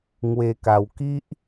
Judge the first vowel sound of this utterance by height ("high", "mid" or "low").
mid